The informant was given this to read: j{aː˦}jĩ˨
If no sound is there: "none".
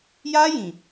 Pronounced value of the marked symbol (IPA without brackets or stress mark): aː˦